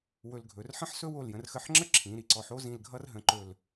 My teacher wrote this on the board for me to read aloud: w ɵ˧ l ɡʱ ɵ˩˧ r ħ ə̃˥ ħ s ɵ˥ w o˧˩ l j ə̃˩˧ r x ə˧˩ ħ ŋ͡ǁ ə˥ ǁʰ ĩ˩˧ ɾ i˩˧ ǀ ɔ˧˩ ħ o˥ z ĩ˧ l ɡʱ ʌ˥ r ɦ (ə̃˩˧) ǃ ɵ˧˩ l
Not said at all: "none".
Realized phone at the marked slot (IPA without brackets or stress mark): ə̃˩˧